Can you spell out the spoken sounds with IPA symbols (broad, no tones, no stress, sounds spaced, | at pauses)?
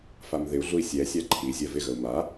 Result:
f a m ð ɪ u̯ ɮ u i̯ sʲ ɛ sʲ a ǃʰ i zʲ ɜ v ɪ ɣ ə u̯ m a